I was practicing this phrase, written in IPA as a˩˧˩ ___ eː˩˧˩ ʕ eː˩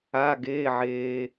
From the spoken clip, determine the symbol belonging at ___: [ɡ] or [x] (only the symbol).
ɡ